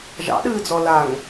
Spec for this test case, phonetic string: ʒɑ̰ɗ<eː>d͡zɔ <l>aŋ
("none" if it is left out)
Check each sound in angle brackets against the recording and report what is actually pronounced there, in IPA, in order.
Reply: ɨː, l

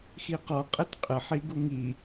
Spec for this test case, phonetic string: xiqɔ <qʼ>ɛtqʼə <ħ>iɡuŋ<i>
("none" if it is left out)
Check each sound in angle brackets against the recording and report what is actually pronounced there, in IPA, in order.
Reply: qʼ, ħ, i

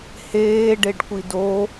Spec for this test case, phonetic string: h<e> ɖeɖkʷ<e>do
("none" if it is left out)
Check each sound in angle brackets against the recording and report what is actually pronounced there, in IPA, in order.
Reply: eː, i

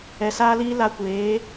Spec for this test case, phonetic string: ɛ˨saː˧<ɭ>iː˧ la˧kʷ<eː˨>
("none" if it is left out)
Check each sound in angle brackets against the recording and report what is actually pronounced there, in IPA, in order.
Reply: l, eː˨˦

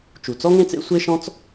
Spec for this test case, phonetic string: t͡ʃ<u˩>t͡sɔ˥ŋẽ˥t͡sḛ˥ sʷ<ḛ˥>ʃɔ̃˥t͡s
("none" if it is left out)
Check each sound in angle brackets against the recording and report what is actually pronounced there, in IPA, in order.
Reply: u˩, e˥

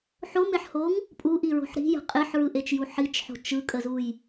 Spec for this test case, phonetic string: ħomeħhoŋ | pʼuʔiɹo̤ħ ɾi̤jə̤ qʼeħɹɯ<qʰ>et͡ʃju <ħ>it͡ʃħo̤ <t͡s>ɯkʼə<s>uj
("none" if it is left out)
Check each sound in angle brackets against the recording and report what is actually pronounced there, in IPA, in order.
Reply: ʔ, ħ, t͡ʃ, z

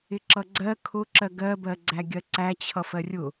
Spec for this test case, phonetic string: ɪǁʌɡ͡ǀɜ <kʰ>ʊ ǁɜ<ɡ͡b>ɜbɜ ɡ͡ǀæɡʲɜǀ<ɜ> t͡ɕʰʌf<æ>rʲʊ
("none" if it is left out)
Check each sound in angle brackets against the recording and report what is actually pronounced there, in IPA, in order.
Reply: kʰ, ɡ, æ, ɜ

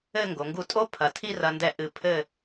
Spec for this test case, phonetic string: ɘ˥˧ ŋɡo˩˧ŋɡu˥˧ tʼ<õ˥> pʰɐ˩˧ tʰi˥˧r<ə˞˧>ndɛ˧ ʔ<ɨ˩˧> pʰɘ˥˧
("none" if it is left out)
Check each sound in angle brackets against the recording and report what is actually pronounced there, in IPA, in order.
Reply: o˥, ɐ˧, ɨ˧˩

